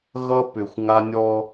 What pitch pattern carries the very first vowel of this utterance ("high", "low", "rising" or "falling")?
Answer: high